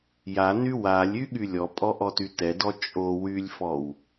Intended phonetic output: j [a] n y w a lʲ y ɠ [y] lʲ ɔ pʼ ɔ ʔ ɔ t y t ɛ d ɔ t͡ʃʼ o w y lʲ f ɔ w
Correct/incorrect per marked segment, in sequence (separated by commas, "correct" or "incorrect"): correct, correct